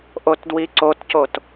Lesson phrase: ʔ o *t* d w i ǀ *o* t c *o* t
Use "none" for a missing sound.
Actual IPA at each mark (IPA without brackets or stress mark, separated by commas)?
t, o, o